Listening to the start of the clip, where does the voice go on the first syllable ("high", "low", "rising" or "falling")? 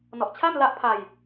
low